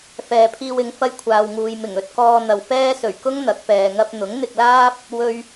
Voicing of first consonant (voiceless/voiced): voiceless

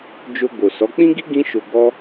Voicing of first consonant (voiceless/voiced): voiced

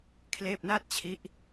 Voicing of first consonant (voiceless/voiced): voiceless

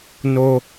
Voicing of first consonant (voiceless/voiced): voiced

